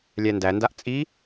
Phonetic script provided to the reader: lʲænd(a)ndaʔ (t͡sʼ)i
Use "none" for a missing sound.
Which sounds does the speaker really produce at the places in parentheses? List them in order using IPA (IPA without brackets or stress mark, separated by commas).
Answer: æ, t͡sʼ